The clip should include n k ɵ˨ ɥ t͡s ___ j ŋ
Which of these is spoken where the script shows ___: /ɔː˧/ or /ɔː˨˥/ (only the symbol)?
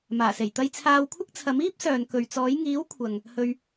ɔː˨˥